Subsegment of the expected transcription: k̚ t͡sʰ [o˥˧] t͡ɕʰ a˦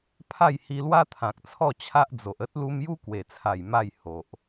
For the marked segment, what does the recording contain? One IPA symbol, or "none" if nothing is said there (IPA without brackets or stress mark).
ɔ˥˧